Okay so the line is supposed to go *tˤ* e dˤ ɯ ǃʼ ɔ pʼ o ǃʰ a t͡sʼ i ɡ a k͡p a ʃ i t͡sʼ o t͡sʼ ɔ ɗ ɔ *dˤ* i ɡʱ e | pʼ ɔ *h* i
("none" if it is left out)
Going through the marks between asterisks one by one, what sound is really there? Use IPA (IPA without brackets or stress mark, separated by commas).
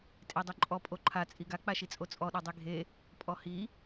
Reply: tʼ, dˤ, h